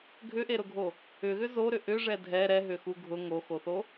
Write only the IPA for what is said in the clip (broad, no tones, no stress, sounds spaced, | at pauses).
ɡʱ ʏ ʔ e ɾ ʊ ɡʱ o | ʏ ɣ ʏ z o ɾ ʏ ʔ ʏ ʐ ɛ dʱ ɛ ɾ ɛ ɦ ʏ x u ɡʱ ʊ ŋ o x o θ o